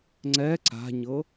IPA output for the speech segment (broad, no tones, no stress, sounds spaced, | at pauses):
ŋ͡ǀ ɛ ǀ a̤ ɲ ɤ